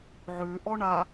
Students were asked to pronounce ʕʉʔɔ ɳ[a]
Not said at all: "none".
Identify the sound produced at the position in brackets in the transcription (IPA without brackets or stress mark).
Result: a